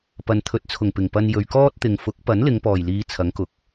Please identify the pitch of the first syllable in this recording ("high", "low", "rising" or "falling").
low